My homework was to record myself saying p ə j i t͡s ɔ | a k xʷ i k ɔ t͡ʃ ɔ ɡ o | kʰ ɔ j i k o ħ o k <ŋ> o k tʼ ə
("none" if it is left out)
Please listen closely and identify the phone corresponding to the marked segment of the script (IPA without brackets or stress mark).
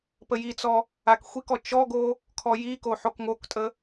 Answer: ŋ